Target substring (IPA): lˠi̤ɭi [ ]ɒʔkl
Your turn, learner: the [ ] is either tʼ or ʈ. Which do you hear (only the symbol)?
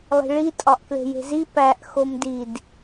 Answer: tʼ